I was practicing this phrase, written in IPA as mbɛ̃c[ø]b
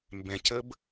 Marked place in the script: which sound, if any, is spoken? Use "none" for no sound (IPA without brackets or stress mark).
ə